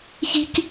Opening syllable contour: high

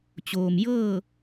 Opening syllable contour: low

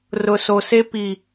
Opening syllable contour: low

